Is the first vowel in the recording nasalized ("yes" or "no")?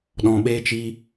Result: yes